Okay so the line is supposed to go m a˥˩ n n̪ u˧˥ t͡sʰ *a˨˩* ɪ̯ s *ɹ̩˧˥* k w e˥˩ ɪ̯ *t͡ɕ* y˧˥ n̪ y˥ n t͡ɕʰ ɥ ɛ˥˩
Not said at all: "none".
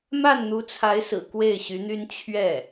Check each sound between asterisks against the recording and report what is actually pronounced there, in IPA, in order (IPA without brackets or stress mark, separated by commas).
a˧˥, ɹ̩˨˩, ɕ